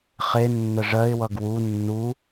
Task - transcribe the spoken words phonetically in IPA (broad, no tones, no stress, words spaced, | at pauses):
χe nːəʐɜɪ̯wʌɡ wu nːu